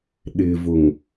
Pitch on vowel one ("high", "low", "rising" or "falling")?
low